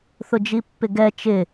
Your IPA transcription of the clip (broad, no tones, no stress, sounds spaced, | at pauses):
θ ʊ d͡ʒ i pː ɪ ɡ ɛ t͡ʃ ɪ